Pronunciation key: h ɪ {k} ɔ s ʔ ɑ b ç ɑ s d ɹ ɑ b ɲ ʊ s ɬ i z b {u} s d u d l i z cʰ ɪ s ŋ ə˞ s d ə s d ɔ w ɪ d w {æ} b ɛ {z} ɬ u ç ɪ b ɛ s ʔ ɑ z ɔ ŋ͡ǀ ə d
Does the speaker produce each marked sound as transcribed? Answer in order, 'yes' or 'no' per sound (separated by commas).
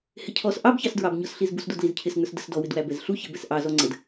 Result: no, yes, yes, yes